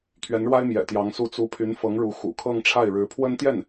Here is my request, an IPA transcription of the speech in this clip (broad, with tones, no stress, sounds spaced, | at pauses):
t̪ʰ ɥ ɛ˧˥ n ɻ w a˥ ɪ̯ m j ɛ̰˨˩ t̪ j ɑ˧˥ ŋ s u˥˩ t͡s u˧˥ pʰ y˧˥ n f ɤ˧˥ ŋ ɻ u˧˥ x ṵ˨˩ kʰ ɤ˥˧ ŋ ʈ͡ʂʰ a˥˩ ɪ̯ ɻ ɻ̩˧˥ pʰ w ə˥ n t̪ j ɛ˥˩ n